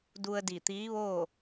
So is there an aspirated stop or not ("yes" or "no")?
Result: no